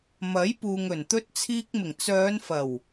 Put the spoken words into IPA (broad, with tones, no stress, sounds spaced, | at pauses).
m ɐ˨˥ j p uː˨ ŋ ɵ˨˩ n t̪ ɵ˧ t̚ t͡sʰ iː˧ k̚ m ɪ˨˩ ŋ t͡s œː˨˧ n f ɐ˨˩ w